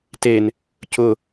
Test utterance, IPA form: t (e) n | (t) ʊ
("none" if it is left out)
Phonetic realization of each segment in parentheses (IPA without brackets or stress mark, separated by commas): e, c